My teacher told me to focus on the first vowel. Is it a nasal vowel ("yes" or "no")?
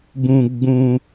yes